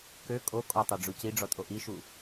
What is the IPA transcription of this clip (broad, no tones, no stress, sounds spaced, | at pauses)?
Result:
k ø kʼ o kʼ ɔ tˤ o ɖ͡ʐ u c i ɖ͡ʐ ɔ tʼ o ʔ i ʃ u